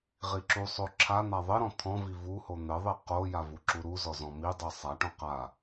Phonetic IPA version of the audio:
ʁ i ǁ u sˤ o ǁʰ a n̪ a ðˤ ɘ ɾ ɔ̃ t̪ʰ ɔ̃ v i v u h o n̪ ɘ ðˤ i q o j a v u ǁ u ɾ u z ɔ z ɔ̃ m i dˤ i sˤ a ʈ ɔ̃ q a

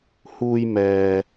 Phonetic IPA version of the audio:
h uː˧ j m ɛː˨

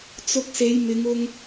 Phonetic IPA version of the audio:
t͡s ʊ˧ k̚ s e˨˧ j m ɪ˨˧ ŋ ʊ˧ ŋ

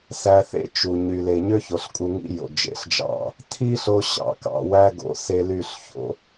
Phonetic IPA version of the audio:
s æ˧ θ ḛ˦ t͡ʃ u˨ ɲ y˨ l e˨ ɲ ø˦ ç o˨ ɬ kʼ u˧ ŋ ḭ˦ j o̰˨ d͡ʒ ḛ˨ ɬ d͡ʒ ɑ̰˦˨ | tʰ i˦ ɬ o˧ ɕ ɑ̰˨ k ɑ̰˨ w æ˧ ɡ o̰˨ s e˧ l y˦˨ ɬ ç o̰˧

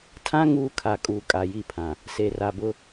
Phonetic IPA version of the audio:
tʰ ã˦ ŋ uː˦ kʰ a˨ kʼ uː˨ kʼ a˨ j i˦˨ pʰ ã˨ | s e˨ r a˨ b ʊ˦

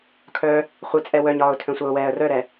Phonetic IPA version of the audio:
kʰ œ | χʷ ɘ t͡sʼ ɛ w œ ɲ ɒː ʊ̯ tʰ œ̃ sʷ ɛ ʊ̯ w ɛː ə̯ r œ ɾ ɛ

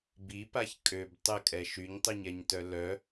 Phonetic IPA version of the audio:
b i p a ç kʼ ø b tˤ ə kʼ ɛ ʃ y ɲ tˤ i ɲ ɛ ɲ t œ l œ

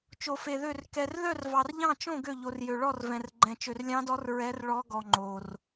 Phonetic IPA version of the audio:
t͡ʃ o˧ f e˧ ð ø˥˧ r k ɛ˧ r ð œ˥˧ r v ɑ˧ r ʎ ɑ̃˥˧ t͡ʃ õ˥˧ ɡ ø˥˧ ʎ o˧ r j ø˧ ɭ ɔ˥˧ r v ɛ̃˧ r ɡ͡ǃ ɛ̃˧ t͡ʃ ø˧ r lʲ ɑ̃˦˥ d ɔ˦˥ r ɹ ɛ˦˥ r ɭ ɔ˦˥ ɡ ɔ˧ ŋ͡ǃ o˧ r

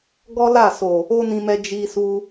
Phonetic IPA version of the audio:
ɡ ɔ˦ l a˦˨ s o˨ | o˦ n ĩ˧ m ɛ˧ d͡ʒ i˧ s u˧

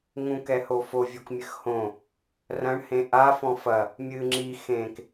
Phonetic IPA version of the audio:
ŋ ũ k ɛ h o f o vʲ o k mʲ ɘ x h õ | r ɐ̃ ɳ h ẽ ʔ a f ɔ̃ f ɐ | mʲ ɨ ŋ͡ǁ i x ẽ k

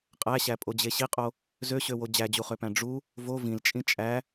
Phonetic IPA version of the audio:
qʼ æ ɕ æ pʼ o d͡ʑ e ɕ i qʼ o | z ø ɕ ø w o d͡ʑ æ d͡ʑ u χ ø p æ̃ ɖ͡ʐ u | v o v ĩ l t͡ʃʼ ĩ t͡ʃʼ æ

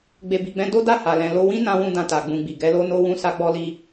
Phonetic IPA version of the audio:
ɡ͡b e˨ b i˨ ɡ͡b ɛ̃˧ d o˦ d a˦˨ h a˨ l ɛ̃˨ l o˧ w ĩ˦ n ã˧ w ũ˧ d ã˨ t a˨ ɡ͡b ũ˨ ɡ͡b i˨ ɡ ɛ˨˦ l o˦ n o˦ w ũ˦ s a˦ ɡ͡b ɔ˦ l i˦

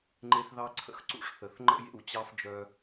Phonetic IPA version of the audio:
ŋ͡ǃ e˧ θ ð ɑ˧ ǀʰ ə̰˧ x ǀ ṵ˧ ʂ θ ə˨ θ ŋ͡ǃ ə̰˦ j ḛ˦˨ w t͡ɕ ɑ˦ f d͡ʒ œ˧

